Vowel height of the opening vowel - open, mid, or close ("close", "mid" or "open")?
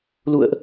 close